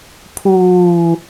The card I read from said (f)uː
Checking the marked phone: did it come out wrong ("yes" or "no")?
yes